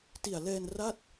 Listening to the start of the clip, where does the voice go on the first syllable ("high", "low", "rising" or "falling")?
low